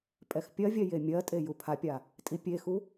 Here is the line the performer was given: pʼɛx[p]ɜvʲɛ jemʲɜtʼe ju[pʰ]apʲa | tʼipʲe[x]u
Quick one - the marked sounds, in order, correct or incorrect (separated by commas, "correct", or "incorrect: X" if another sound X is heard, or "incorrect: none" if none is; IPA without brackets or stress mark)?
incorrect: pʲ, correct, correct